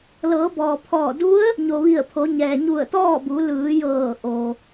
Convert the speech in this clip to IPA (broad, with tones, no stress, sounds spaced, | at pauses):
l ɤː˩˧ b ɔː˩ pʰ ɔː˧˩ d u˧˥ ə̯ | ɲ o˩ ʋ i˧˩ ə̯ pʰ o˩˧ ɲ ɛː˩ ɲ u˧˩ ə̯ t̪ ɔː˥˨ b u˩˧ l ɯː˩˧ j ɤː˧˩ ʔ o˩